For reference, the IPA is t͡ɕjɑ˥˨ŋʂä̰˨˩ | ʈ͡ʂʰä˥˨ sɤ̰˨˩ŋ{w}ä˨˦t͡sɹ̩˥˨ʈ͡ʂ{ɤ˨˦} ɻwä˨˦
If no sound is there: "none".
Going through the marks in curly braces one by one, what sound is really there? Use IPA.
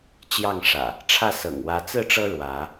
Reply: w, ɤ˦

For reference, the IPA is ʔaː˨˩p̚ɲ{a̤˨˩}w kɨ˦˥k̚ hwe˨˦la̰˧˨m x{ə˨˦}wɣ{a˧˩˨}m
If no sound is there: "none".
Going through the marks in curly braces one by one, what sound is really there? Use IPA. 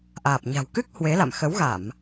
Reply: a̤˨˩, ə˨˦, a˧˩˨

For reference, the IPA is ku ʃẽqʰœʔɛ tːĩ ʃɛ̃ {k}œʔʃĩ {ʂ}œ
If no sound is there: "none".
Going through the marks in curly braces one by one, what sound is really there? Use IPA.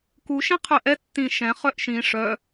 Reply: χ, ʂ

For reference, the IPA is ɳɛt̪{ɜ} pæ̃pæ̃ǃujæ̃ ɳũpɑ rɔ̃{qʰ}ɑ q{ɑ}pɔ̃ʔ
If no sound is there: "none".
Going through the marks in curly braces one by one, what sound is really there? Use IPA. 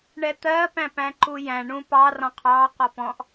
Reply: ɜ, qʰ, ɒ

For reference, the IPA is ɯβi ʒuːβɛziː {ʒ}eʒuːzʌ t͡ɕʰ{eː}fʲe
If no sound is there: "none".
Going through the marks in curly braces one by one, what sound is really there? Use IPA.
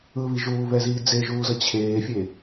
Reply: d͡z, eː

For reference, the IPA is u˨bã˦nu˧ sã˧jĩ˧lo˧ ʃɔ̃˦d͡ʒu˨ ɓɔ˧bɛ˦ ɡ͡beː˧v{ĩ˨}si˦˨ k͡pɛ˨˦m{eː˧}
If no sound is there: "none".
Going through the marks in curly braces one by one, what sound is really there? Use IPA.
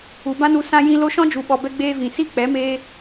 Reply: ĩ˨, eː˦

